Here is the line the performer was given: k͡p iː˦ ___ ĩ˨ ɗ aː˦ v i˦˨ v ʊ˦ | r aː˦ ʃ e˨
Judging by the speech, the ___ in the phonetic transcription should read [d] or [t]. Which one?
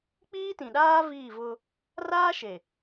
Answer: t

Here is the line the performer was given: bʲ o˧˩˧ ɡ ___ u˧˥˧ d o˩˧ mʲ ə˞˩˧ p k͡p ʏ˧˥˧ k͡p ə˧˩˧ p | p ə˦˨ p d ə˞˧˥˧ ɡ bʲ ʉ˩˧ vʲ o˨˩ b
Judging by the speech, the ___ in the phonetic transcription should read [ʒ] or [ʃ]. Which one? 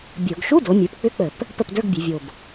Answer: ʃ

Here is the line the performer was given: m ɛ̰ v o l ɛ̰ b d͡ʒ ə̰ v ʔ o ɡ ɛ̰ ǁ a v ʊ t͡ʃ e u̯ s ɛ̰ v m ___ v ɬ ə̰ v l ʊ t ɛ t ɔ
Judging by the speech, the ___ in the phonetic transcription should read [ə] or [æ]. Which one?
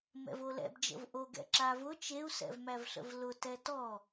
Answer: æ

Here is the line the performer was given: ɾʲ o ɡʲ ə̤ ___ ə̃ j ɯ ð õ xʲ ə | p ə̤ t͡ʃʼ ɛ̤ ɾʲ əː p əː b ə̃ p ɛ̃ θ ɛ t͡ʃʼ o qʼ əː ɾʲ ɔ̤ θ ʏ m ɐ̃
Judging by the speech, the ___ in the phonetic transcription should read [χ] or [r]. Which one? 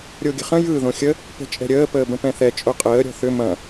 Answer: χ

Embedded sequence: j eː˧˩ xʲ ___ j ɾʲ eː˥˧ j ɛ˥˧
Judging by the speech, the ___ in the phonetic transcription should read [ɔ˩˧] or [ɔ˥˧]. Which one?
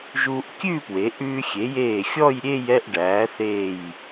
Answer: ɔ˥˧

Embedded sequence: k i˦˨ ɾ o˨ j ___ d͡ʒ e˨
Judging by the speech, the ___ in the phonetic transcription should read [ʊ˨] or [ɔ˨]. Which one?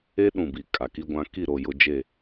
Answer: ʊ˨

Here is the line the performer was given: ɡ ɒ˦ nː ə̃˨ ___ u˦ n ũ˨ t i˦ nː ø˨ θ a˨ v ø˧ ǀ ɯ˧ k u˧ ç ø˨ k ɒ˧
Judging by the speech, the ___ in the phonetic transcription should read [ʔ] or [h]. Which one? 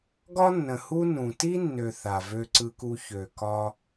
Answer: h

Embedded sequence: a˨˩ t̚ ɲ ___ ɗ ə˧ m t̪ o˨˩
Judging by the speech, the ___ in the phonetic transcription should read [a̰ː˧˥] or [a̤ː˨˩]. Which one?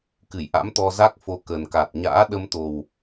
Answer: a̰ː˧˥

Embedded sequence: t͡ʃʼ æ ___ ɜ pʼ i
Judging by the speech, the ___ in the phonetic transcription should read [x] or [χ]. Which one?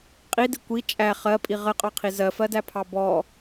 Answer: χ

